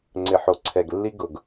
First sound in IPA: ŋ͡ǀ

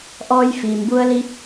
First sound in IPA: ʔ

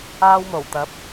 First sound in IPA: aː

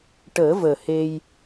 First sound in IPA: ʈ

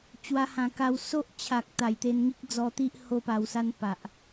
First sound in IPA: t͡ɕ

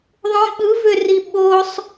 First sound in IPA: ðˤ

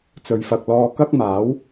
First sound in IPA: t͡s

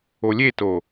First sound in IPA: o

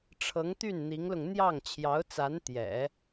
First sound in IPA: ʈ͡ʂʰ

